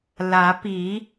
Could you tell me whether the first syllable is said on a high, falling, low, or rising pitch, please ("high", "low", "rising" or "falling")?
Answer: rising